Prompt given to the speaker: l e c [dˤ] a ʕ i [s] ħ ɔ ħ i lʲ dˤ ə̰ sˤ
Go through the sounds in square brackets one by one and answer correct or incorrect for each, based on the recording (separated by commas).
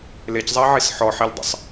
incorrect, correct